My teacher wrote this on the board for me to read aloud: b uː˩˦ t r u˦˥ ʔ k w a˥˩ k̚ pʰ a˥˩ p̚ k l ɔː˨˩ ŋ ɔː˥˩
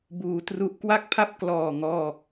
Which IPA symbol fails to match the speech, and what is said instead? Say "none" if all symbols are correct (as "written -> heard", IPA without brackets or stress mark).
none